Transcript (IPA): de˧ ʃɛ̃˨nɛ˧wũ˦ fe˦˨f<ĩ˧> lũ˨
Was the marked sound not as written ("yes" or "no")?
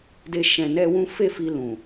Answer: yes